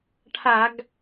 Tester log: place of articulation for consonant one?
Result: retroflex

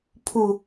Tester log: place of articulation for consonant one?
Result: labial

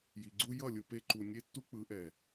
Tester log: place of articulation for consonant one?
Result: palatal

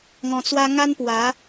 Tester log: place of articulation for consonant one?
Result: velar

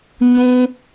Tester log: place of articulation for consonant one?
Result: palatal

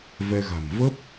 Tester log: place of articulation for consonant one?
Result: labial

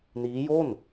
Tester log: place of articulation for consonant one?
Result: alveolar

